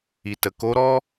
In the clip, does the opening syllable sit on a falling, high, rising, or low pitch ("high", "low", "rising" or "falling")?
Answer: low